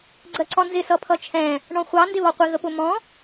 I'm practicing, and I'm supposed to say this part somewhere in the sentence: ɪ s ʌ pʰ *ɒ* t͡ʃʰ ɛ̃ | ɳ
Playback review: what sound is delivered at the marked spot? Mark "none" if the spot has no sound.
ʌ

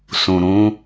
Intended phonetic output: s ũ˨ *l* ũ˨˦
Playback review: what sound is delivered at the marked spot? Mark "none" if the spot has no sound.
ɾ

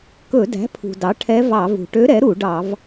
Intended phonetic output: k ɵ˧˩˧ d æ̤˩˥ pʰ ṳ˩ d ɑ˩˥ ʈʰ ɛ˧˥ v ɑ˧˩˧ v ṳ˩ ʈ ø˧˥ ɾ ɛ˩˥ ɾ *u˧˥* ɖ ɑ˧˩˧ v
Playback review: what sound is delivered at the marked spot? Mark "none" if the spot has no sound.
u˧˩˧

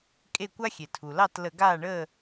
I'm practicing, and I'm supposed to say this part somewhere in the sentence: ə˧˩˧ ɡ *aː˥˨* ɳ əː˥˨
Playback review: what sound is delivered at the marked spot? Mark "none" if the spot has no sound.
aː˥˨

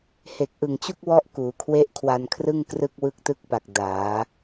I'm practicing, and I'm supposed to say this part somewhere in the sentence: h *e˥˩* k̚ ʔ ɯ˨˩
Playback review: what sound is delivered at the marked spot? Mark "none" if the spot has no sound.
e˨˩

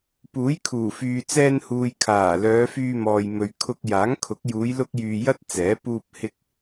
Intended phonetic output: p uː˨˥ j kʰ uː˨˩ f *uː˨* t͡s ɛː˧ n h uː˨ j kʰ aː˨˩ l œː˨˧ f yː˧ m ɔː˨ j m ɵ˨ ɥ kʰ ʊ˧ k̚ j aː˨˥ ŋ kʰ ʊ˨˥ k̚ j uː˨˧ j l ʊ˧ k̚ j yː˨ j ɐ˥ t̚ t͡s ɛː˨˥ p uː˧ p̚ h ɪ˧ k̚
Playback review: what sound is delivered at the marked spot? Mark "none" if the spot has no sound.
yː˨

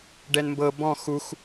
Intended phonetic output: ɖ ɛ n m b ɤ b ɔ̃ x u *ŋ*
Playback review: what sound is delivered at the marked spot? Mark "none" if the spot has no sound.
x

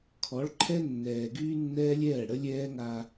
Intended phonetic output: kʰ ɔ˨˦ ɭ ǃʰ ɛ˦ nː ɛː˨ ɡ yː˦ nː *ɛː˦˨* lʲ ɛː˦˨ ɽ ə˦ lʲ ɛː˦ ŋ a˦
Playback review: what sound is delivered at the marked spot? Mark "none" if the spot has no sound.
ɛː˦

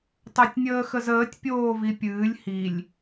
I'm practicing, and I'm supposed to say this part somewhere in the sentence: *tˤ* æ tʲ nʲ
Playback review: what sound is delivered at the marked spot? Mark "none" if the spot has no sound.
tˤ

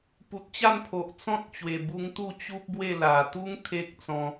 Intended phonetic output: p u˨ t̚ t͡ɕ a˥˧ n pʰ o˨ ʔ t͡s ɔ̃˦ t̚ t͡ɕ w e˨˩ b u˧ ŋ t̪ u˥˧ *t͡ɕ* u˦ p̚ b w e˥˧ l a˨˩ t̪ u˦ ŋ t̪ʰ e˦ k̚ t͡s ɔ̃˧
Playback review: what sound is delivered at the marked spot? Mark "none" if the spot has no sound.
t͡ɕ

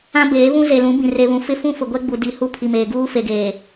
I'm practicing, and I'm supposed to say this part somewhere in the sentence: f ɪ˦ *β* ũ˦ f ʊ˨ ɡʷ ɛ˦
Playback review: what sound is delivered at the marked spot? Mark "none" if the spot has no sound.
f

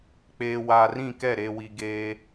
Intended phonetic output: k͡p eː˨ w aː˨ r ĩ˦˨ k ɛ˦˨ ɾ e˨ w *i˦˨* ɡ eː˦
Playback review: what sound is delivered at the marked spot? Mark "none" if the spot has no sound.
i˨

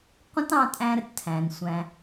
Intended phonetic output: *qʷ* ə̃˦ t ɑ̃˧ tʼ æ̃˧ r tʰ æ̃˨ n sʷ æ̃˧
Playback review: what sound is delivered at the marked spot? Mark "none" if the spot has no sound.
qʷ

